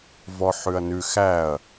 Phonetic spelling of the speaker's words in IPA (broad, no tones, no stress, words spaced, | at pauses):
vɔħʉɐ̯nʉ xæɐ̯